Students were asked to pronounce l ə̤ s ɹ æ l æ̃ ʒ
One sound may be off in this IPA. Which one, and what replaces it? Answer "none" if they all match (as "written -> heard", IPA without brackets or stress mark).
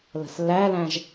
ɹ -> lː